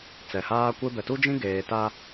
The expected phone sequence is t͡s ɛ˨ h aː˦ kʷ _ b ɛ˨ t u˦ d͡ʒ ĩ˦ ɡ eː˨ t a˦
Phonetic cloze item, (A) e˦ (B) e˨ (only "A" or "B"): A